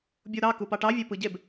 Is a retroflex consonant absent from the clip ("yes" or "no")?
no